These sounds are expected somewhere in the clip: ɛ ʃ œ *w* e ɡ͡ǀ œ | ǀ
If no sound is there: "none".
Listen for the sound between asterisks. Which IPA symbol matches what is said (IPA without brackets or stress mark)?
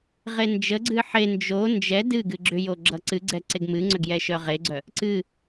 ʁ